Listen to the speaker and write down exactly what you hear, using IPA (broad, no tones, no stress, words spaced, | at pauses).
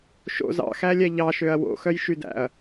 ʃo̰z ɑ̰xælʲɛ ʎɑʃøɐ̯ wo̰xœjʃydæ̰ɐ̯